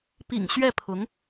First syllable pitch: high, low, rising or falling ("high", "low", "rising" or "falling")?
low